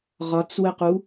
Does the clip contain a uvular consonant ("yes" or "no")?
yes